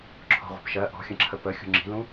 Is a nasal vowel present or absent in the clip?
present